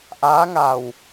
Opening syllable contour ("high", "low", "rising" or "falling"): rising